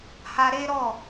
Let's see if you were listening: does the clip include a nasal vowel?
no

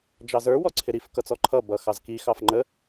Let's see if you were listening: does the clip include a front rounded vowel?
no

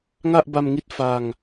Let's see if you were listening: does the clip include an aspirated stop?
no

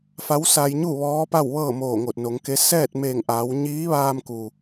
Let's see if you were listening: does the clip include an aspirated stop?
no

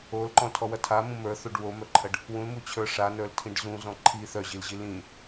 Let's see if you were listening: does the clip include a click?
yes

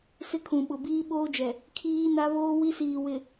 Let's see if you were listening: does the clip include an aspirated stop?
yes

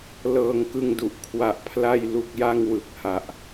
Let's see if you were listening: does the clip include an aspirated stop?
yes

